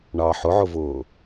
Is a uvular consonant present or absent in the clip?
absent